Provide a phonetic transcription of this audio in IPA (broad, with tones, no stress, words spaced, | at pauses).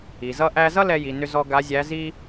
i˩zʌ˧ʔæ˧zʌ˥ lɛ˥ji˩˧nʏ˥zɔ˥ ɡa˧˥zʲæ˧˥zi˥